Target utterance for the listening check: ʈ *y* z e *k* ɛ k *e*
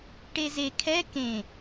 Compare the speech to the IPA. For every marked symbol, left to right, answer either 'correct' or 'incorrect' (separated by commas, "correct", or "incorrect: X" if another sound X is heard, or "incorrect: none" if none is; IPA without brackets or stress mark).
incorrect: e, incorrect: kʰ, incorrect: ẽ